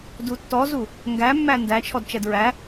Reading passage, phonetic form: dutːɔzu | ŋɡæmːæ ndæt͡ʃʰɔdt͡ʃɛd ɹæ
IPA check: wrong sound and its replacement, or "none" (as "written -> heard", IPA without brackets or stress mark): none